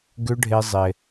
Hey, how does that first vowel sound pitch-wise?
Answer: high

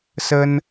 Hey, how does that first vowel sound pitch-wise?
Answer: high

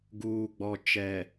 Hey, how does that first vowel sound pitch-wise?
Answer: low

